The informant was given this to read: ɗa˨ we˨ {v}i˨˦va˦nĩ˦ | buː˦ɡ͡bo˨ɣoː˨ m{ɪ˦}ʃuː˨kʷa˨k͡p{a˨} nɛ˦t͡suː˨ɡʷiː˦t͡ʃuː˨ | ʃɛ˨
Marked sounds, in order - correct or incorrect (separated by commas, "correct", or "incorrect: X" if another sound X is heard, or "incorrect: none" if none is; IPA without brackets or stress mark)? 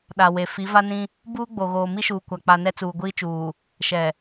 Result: incorrect: f, incorrect: i˦, correct